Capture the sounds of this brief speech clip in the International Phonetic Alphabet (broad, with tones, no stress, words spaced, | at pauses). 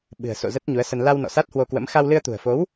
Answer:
ɓɨ̤˨˩ə̯so̰˧˨ zə˦˥t̚ɲu˨˦ə̯sə˧n la˧w nɔ̰˧˨sa˦˥t̚hwo˧kwə̰˧˥m xa˧wlɨ˧ə̯t̪ṳ˨˩ə̯fo˨˦w